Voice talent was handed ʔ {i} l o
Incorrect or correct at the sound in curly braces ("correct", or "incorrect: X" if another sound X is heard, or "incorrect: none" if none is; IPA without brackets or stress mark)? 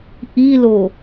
correct